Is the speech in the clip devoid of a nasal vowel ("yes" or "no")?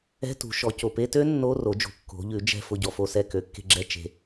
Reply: yes